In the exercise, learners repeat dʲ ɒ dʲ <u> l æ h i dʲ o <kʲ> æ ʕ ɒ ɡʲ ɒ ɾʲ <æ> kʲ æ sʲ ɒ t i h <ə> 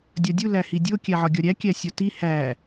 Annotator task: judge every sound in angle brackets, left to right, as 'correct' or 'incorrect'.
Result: correct, correct, correct, incorrect

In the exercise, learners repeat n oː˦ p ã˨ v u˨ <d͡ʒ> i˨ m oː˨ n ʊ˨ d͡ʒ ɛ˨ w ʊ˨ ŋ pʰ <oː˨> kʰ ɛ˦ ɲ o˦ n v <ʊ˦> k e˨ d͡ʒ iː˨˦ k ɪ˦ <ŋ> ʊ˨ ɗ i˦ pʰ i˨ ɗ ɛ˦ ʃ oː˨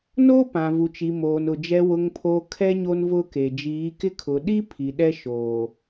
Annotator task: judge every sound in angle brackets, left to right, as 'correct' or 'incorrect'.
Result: incorrect, correct, correct, incorrect

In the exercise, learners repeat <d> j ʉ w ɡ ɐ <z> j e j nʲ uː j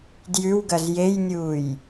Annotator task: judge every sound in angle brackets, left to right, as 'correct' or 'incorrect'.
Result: correct, correct

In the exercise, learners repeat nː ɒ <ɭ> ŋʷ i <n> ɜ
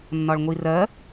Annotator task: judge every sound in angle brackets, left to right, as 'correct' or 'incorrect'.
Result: correct, incorrect

